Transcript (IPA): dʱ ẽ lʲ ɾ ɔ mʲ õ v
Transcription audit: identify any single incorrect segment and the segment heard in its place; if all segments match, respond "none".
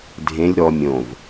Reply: none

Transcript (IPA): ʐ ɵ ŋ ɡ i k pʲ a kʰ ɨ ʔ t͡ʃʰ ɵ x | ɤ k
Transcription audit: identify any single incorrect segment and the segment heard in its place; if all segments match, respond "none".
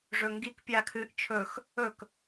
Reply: ɤ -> ɵ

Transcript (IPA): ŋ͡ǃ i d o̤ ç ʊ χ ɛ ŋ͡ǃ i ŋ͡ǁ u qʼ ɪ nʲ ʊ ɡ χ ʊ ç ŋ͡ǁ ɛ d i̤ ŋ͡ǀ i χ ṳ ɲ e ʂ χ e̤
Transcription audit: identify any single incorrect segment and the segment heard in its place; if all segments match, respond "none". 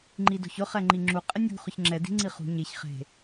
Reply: ʂ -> ç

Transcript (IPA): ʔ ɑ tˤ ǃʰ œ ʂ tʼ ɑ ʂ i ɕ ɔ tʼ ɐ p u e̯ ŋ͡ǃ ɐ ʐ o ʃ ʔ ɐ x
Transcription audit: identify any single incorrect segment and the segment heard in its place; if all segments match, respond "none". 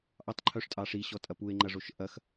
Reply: none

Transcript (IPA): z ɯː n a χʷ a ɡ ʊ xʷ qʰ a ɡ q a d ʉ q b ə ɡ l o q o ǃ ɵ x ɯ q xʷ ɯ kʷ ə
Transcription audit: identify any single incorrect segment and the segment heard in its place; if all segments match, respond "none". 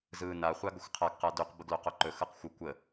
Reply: none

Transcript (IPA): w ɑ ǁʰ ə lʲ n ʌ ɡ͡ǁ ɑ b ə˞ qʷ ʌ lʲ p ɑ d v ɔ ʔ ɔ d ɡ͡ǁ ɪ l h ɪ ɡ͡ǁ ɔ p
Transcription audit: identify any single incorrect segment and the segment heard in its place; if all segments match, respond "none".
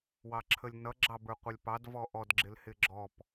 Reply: none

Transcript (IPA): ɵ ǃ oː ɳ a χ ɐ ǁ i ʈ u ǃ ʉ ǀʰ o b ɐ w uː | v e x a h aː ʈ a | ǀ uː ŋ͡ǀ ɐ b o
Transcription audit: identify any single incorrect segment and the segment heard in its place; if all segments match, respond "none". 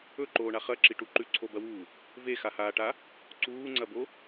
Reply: none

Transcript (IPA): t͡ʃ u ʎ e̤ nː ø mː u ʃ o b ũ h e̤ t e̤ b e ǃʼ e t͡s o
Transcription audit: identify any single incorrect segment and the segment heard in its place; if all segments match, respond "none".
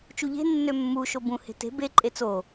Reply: none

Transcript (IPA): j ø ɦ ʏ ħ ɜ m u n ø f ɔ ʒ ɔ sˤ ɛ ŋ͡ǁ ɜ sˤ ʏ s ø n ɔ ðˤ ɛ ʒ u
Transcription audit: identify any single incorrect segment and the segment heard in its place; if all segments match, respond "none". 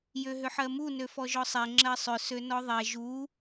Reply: none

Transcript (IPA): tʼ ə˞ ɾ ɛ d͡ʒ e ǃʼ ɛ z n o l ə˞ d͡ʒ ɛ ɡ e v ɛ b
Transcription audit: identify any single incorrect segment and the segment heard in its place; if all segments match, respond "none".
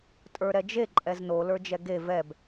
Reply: none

